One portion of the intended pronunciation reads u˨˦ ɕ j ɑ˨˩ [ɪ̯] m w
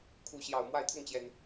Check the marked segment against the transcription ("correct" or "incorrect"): incorrect